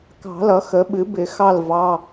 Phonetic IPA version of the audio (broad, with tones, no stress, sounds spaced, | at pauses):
k ɑ̤˨˩˦ l ʌ˩˥ x ə˩˥ ɓ ɨ˩˥ b ɪ˨˩˦ x ɑ˥˨ l v ɑ˩˧˩